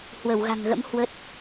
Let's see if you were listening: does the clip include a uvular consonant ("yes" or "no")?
no